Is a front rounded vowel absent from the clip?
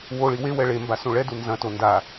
yes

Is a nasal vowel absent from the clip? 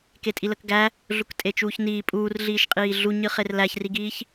yes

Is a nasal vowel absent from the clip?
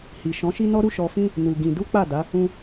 no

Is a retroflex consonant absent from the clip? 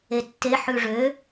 no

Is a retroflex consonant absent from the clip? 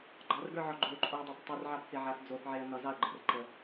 yes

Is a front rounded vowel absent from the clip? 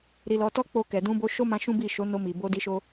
yes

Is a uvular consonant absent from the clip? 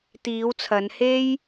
yes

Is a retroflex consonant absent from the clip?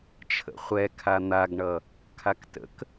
no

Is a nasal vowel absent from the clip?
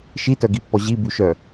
yes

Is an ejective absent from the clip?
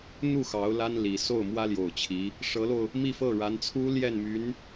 yes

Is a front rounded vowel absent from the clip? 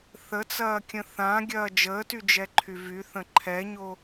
no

